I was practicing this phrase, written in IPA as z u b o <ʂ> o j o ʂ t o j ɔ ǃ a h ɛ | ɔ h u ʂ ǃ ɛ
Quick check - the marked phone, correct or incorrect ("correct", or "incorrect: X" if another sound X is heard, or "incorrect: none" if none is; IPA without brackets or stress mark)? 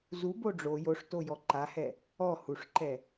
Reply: incorrect: ɖ͡ʐ